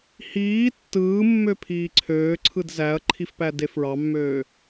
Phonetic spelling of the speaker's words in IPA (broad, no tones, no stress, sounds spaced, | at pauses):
h iː tː ɯː mː ø pʰ iː ǀʰ øː ǀʰ ɯ d z æ ɐ̯ ǃʰ i f p æ d e f ɹ ɑ mː øː